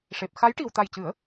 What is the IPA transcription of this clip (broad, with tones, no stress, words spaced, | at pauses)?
ʂe˨˩p̚xa˧˥j ʈi˨˩wt̪a˨˩jcɨ˨˩˦ə̯